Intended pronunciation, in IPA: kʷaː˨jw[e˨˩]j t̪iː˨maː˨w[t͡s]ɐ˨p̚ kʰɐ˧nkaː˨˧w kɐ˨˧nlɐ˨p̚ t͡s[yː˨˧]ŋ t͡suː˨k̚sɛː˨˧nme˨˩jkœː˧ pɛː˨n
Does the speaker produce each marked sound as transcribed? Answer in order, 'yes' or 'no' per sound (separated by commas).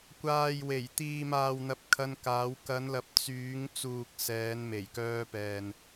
yes, no, yes